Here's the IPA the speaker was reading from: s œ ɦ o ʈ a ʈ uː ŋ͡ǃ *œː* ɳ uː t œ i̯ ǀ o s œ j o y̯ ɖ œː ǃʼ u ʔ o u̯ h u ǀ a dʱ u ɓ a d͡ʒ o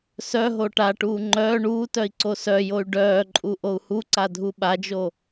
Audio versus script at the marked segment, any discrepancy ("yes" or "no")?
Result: no